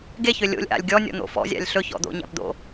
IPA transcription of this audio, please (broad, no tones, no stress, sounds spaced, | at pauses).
ɡ e ç ø lʲ o̰ lʲ ʔ a̰ lʲ ɡʲ ɔ nʲ ɔ̰ n̪ o̰ f ɔ̰ zʲ a̰ lʲ ɬ ɵ ç ɔ̰ d̪ o̰ ɲ a̰ p d̪ o̰